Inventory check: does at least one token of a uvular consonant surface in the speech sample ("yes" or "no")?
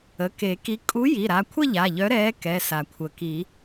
no